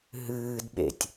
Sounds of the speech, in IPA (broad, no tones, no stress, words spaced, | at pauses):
ɦɨːdɓḛtʲ